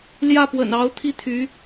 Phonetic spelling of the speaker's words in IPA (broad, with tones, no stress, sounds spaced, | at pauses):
l j ä˥˩ p w ə̰˨˩ n ɑ˧˥ ʊ̯ t̪ʰ i˥˩ t̪ʰ y˧˥